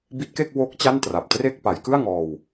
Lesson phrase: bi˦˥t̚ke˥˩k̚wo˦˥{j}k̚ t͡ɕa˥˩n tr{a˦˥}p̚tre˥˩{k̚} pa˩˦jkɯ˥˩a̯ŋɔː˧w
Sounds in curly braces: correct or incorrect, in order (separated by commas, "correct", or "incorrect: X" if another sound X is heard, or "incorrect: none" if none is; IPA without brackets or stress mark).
incorrect: none, incorrect: a˨˩, correct